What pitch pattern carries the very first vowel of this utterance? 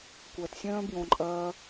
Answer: low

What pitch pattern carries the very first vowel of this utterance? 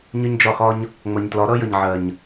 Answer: high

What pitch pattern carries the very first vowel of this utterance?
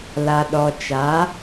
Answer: low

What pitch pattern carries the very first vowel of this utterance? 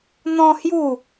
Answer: high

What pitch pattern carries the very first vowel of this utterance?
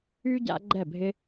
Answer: high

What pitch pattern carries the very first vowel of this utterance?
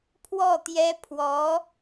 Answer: falling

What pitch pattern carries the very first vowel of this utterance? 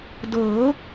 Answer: rising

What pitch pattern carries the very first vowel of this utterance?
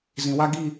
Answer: low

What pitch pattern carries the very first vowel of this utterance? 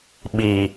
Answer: low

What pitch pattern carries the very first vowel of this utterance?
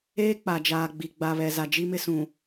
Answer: high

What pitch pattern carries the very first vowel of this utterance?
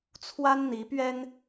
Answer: high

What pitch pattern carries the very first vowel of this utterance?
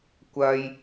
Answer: high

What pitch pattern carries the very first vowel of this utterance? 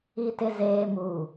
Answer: low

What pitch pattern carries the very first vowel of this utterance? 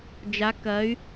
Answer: rising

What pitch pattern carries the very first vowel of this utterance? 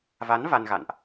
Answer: rising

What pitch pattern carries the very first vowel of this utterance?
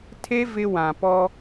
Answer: high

